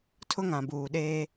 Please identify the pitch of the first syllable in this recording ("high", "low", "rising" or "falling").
high